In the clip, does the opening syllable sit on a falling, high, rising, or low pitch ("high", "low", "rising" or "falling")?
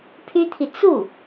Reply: high